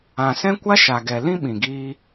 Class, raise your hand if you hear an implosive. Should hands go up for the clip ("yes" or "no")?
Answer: yes